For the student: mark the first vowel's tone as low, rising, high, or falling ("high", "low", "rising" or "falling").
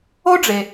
high